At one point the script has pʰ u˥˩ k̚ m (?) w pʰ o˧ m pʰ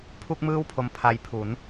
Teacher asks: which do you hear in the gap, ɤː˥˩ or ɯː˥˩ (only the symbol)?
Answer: ɯː˥˩